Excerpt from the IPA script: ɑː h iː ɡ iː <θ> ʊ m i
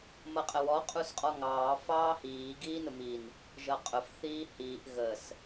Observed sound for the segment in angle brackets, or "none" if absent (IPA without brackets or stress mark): n